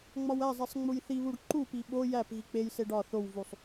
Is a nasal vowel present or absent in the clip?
absent